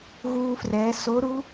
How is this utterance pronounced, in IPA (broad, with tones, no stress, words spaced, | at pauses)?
ɣuː˥frɛː˧˥ so˧˥ɾu˧˥